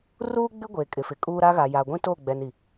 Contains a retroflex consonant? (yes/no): no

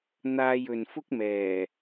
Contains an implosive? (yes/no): no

